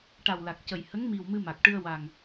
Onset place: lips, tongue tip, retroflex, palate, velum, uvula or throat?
retroflex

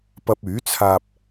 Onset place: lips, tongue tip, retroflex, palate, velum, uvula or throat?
lips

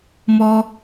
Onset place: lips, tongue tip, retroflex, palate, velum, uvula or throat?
lips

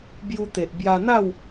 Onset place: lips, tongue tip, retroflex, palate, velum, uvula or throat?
lips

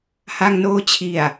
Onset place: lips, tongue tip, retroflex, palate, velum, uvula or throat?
throat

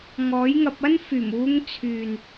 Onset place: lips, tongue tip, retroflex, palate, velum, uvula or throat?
velum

